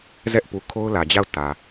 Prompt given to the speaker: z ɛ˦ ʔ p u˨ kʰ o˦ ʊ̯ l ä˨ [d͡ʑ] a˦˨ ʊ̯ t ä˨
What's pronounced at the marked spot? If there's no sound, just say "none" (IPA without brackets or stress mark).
d͡ʑ